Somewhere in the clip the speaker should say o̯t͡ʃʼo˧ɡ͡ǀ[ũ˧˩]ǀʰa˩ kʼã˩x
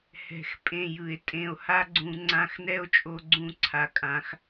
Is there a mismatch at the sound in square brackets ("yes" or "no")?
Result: no